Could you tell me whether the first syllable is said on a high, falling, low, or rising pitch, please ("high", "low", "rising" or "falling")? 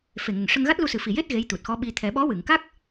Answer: low